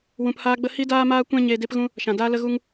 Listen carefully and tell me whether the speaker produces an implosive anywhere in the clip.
no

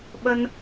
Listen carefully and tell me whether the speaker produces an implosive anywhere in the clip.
yes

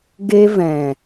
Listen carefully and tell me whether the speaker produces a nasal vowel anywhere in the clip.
yes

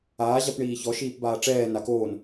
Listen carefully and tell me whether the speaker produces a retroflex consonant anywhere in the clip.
yes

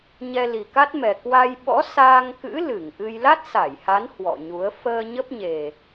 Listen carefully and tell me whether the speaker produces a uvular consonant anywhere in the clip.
no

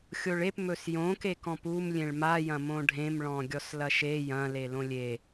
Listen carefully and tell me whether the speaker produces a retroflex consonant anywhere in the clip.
yes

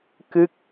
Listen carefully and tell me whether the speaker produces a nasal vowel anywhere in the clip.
no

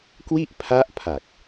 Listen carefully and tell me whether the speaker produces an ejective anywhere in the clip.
no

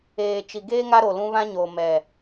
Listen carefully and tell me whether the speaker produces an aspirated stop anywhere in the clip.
no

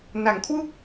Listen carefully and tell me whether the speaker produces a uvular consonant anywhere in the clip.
no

